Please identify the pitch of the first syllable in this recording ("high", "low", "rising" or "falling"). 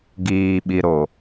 low